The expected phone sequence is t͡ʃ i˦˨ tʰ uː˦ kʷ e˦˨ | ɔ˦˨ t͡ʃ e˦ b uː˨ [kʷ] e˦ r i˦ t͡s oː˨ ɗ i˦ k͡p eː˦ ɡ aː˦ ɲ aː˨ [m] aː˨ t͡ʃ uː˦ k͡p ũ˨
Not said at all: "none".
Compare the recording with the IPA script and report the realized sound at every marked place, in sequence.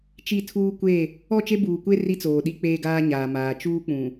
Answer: kʷ, m

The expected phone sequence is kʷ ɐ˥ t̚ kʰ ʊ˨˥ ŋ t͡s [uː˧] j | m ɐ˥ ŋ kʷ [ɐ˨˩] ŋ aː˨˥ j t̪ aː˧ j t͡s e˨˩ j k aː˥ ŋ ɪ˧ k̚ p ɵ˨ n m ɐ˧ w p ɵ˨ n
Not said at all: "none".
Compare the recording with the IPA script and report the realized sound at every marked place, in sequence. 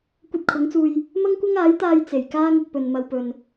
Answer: uː˧, ɐ˥

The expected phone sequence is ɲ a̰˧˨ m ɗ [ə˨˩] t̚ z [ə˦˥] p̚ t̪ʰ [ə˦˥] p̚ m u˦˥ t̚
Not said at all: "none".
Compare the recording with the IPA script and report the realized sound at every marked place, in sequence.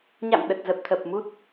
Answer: ə˨˩, ə˨˩, ə˨˩

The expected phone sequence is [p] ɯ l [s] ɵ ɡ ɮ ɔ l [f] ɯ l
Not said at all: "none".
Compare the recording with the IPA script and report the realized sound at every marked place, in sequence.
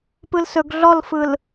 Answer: p, s, f

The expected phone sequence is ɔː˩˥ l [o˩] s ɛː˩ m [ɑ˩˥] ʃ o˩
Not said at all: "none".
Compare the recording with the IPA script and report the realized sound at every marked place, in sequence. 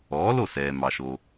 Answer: o˥˩, ɑ˩

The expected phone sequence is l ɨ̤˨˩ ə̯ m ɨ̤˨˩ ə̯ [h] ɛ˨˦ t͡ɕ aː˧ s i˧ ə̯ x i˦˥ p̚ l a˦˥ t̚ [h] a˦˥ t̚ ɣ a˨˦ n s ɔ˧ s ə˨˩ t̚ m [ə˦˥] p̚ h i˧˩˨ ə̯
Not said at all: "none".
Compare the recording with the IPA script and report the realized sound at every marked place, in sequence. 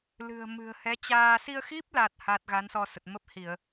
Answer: h, h, ə˦˥

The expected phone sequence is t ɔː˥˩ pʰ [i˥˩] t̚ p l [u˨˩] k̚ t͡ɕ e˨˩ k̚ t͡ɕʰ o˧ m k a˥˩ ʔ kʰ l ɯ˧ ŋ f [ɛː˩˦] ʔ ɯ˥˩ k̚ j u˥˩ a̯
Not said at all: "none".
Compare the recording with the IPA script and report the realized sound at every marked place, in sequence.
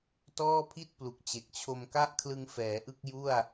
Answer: i˥˩, u˨˩, ɛː˩˦

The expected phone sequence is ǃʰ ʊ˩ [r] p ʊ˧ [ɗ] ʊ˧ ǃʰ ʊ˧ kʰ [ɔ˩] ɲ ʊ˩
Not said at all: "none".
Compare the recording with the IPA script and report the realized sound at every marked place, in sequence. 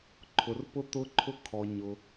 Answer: r, t̪, ɔ˩

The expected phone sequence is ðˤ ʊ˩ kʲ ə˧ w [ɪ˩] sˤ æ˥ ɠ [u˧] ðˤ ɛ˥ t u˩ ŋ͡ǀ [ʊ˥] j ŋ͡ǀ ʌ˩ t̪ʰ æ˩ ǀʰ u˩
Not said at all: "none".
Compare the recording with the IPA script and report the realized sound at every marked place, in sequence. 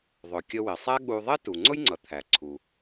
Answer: ɪ˩, u˧, ʊ˥

